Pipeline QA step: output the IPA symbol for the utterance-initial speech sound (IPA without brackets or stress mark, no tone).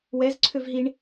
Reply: w